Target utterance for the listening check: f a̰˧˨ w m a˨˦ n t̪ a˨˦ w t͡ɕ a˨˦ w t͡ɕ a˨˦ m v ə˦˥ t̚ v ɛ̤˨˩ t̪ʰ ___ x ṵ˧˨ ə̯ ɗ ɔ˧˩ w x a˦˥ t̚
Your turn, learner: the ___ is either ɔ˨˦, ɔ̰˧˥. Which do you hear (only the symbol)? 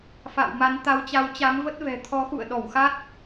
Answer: ɔ˨˦